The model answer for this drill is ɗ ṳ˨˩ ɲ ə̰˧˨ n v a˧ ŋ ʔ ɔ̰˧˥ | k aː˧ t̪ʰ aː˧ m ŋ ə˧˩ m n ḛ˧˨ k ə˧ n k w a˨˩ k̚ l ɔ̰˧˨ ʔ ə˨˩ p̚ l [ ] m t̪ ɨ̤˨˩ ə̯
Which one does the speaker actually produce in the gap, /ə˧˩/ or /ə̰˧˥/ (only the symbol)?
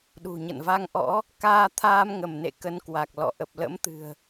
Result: ə̰˧˥